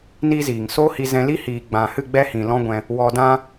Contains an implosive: no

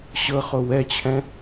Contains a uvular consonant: yes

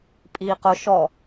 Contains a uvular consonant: yes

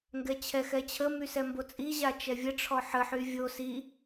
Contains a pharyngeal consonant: yes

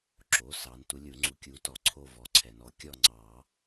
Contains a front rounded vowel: no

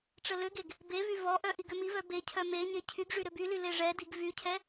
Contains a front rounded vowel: yes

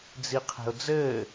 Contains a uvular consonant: yes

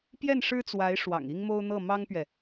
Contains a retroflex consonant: yes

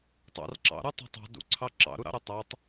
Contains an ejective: no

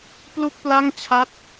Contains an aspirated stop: yes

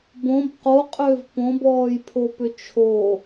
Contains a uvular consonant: yes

